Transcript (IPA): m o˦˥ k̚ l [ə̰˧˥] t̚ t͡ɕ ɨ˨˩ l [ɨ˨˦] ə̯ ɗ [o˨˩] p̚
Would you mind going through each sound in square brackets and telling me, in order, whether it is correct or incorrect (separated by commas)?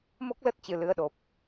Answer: incorrect, correct, correct